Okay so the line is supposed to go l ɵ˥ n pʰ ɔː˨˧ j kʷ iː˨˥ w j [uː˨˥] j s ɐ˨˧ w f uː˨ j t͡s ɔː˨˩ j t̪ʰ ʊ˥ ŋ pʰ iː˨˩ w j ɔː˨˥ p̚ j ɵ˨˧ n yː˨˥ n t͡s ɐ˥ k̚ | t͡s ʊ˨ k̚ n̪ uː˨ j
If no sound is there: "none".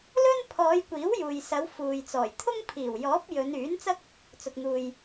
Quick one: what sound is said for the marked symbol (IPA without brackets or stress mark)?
uː˨